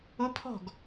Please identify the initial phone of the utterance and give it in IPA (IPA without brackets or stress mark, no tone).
ʊ